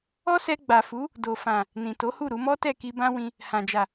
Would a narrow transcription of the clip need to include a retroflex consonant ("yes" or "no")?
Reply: no